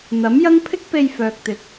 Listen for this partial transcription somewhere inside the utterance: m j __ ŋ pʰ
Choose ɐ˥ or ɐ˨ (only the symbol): ɐ˥